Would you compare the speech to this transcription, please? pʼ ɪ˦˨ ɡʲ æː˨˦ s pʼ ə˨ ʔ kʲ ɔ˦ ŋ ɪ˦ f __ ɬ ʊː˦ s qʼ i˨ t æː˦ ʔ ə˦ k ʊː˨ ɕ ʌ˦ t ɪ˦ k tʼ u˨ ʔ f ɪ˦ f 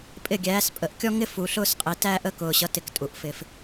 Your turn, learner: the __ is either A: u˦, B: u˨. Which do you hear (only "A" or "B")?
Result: B